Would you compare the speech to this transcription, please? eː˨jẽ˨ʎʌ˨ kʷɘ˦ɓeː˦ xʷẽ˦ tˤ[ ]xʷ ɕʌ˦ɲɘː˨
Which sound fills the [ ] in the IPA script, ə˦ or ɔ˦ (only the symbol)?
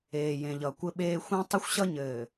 ə˦